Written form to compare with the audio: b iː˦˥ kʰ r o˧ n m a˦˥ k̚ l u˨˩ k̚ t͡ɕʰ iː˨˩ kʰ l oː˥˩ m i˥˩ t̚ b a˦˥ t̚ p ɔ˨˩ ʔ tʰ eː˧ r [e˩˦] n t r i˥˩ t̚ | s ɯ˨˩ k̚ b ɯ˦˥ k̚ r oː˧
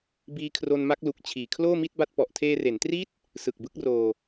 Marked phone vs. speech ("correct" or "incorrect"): correct